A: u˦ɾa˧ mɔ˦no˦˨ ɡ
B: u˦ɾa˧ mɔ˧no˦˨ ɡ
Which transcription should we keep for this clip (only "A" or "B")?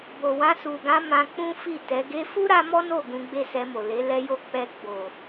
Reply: A